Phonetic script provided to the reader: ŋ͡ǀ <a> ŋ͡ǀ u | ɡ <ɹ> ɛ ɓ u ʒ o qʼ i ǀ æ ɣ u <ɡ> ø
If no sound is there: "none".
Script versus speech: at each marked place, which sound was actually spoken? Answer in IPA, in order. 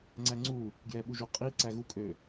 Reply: æ, j, kʼ

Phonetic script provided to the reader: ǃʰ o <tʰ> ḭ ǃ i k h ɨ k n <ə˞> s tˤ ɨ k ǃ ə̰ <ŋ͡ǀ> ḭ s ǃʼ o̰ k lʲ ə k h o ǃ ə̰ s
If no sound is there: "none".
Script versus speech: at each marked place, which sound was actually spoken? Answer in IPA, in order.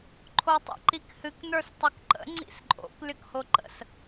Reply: tˤ, ə˞, ŋ͡ǀ

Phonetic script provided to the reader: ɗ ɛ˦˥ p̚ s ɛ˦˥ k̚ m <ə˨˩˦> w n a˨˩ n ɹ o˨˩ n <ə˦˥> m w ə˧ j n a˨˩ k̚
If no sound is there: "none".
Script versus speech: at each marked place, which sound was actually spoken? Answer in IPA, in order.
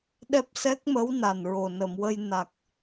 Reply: ə˧˥, ə˨˩˨

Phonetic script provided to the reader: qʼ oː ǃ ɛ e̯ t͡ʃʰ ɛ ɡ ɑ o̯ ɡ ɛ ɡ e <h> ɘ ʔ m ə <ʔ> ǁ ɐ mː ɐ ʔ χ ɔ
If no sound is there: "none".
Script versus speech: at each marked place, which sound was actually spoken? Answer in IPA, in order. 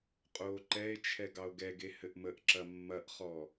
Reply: h, ʔ

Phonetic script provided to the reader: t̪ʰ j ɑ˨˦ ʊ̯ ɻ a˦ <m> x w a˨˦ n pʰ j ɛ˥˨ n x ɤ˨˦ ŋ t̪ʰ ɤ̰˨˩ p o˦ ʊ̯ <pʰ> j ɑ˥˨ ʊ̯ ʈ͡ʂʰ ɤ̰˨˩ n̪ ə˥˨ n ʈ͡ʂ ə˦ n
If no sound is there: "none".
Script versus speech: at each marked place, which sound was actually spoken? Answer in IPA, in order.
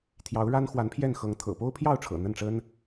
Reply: n, pʰ

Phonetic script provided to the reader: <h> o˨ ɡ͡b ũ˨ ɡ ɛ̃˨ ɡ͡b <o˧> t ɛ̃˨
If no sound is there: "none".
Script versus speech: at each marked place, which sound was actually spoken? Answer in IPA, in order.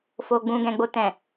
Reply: f, o˨

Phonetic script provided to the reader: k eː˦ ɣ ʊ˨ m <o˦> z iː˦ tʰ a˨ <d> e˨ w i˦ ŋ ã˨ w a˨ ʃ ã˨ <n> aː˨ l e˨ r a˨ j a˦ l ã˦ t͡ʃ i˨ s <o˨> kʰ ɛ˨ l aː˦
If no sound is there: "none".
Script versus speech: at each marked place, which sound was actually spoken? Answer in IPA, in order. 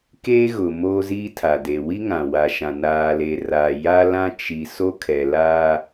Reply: oː˦, d, n, o˦

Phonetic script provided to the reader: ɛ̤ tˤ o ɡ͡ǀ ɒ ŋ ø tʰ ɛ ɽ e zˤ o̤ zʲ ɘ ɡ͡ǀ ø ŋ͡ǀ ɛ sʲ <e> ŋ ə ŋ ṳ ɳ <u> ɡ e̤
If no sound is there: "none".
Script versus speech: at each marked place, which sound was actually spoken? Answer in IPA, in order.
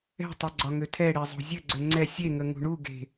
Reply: e, u

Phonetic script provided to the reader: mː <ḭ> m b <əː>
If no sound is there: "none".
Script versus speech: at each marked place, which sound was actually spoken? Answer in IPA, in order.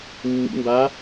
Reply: ḭ, aː

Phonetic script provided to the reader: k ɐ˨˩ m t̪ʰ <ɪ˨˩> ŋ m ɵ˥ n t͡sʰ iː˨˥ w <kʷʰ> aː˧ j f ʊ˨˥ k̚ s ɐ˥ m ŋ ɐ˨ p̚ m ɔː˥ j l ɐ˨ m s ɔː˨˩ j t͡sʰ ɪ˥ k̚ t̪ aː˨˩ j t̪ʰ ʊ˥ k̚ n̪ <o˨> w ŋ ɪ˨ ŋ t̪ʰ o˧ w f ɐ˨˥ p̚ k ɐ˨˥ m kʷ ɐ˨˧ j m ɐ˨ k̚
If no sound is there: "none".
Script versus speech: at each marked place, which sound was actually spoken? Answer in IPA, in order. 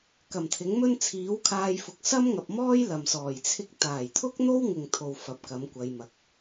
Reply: ɪ˨˥, kʰ, o˥

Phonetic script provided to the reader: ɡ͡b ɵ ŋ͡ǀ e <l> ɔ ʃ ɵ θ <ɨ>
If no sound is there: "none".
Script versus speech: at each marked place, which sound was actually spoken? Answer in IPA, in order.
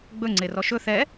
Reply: r, ɛ

